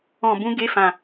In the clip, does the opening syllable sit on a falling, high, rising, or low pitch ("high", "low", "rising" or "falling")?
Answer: low